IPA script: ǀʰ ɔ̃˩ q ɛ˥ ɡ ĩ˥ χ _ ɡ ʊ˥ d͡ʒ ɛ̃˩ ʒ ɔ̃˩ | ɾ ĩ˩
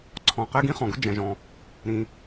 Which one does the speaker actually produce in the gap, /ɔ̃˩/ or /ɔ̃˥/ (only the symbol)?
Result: ɔ̃˩